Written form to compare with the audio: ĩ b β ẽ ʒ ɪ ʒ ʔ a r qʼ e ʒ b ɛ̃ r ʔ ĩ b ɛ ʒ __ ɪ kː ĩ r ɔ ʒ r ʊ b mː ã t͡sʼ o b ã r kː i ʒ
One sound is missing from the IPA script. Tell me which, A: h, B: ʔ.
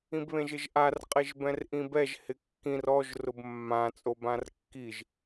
A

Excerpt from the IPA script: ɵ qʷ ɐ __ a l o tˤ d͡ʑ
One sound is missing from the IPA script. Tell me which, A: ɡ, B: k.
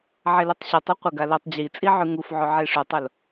A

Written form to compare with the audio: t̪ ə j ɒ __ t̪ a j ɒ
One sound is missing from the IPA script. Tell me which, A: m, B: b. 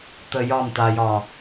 A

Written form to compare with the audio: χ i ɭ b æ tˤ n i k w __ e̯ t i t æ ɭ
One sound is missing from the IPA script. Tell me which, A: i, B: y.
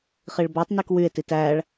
B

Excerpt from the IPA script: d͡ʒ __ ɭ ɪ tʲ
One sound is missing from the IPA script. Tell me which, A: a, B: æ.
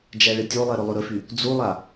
B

